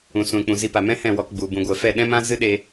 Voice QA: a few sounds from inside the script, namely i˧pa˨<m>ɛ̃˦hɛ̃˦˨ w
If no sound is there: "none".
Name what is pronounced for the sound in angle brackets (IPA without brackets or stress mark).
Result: m